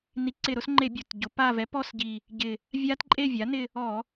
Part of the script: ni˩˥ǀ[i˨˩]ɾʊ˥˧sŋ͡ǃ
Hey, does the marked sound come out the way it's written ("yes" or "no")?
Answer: no